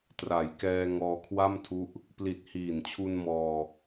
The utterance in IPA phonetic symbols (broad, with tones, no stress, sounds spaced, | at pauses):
t r a˩˦ j k ɛː˧ ŋ ɔː˧ kʰ w a˥˩ m tʰ u˦˥ ʔ | p l i˨˩ t̚ h iː˨˩ n t͡ɕʰ u˧ n m ɔː˧